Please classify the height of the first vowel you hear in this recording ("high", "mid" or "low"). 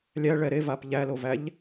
low